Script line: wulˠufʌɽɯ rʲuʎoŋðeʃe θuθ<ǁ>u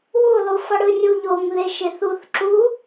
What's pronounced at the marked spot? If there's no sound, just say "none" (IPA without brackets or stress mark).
ǁ